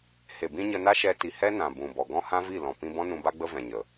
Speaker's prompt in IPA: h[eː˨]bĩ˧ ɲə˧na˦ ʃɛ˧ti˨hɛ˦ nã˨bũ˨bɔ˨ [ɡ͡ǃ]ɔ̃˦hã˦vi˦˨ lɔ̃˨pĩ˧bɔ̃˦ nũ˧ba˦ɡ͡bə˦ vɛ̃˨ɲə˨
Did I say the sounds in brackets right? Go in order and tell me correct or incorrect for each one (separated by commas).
incorrect, incorrect